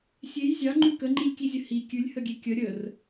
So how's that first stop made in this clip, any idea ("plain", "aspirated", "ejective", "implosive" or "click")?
click